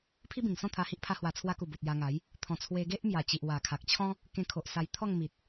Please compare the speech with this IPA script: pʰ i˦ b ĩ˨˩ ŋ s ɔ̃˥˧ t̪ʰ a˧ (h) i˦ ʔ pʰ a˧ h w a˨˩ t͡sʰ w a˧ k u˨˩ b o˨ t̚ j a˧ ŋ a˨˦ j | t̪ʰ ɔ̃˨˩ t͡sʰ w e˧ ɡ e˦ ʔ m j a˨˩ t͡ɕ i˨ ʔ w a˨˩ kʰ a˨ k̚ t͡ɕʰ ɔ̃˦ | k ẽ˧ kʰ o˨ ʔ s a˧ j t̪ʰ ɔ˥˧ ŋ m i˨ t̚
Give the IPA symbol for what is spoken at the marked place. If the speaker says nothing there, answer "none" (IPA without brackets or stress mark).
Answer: h